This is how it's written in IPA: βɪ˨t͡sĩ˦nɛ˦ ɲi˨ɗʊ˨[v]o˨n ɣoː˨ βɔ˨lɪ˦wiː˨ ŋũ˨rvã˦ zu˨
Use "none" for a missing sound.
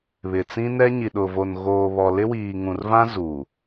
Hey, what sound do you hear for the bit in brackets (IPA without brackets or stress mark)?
v